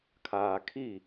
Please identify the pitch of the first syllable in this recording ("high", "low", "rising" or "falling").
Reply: low